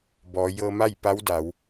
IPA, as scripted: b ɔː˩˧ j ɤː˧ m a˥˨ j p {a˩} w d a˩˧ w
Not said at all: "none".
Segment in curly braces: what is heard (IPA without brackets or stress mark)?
a˧˥